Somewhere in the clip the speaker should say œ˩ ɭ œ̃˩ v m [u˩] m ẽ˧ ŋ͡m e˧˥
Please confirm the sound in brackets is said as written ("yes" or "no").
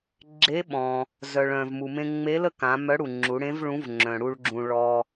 yes